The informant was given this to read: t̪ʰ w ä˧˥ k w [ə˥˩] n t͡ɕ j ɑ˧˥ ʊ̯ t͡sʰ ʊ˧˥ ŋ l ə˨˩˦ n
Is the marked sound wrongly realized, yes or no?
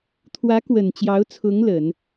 yes